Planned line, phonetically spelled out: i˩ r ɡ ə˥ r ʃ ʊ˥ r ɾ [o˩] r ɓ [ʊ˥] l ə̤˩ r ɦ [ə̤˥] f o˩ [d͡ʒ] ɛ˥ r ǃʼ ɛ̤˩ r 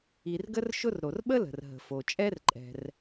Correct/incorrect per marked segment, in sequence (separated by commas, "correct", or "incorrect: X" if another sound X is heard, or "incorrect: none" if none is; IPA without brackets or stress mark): correct, incorrect: ə˥, incorrect: ə̤˩, incorrect: t͡ʃʼ